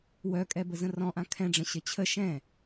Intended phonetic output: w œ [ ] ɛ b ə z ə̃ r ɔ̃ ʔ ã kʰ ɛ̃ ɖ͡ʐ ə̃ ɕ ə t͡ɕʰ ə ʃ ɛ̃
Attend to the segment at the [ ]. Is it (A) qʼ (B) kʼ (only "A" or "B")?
B